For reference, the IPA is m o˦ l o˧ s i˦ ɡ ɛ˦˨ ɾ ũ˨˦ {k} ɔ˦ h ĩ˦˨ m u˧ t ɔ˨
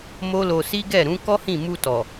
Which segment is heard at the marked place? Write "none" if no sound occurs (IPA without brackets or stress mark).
k